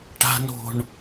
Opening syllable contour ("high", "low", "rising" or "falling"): low